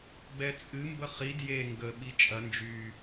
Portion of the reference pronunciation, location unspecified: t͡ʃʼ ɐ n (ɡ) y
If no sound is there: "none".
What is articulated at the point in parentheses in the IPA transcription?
d͡ʒ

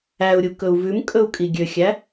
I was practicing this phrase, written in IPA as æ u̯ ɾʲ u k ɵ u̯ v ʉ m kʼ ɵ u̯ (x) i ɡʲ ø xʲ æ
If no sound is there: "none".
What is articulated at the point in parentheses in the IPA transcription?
kʼ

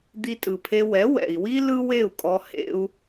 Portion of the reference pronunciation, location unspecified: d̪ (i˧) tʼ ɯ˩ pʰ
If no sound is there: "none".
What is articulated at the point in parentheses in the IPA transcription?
i˧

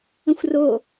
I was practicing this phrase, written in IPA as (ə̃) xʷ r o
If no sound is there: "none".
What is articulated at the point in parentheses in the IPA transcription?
ə̃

